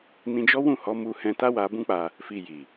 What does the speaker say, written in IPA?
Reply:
n ĩ˧ d͡ʒ ɔ˦ w ũ˦˨ h ɔ˨˦ m u˧ h ɛ̃˧ t a˦ w a˧ b ũ˦ k͡p a˧ | f i˧ j i˨

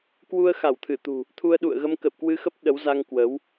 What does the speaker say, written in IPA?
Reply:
k w u˧ ə̯ x a˧˩ w t̪ʰ ɨ˧˩ t̪ ṳ˨˩ | t̪ʰ u˧ ə̯ ɗ ṵ˧˨ ə̯ ɣ ə˧ m k ə̰˧˨ w k w ɨ˧ x ə˦˥ p̚ ɗ ə˨˦ w z a˧ ŋ k w ə˨˦ w

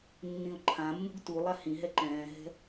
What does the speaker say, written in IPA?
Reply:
nː ĩ ʊ̯ ǃʰ ã mː ṳ ɡ t u lˠ a h ĩ ɦ ɛ ǃ ɛ̃ː ɦ ɛ̤

